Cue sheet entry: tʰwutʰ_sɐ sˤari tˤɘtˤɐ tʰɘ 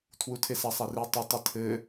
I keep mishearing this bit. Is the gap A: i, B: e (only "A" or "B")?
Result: B